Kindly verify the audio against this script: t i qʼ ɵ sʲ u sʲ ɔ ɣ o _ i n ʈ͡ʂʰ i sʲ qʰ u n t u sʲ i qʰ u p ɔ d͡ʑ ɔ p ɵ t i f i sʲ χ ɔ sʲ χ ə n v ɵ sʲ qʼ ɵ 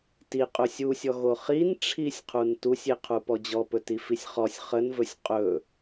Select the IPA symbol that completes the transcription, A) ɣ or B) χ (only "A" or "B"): B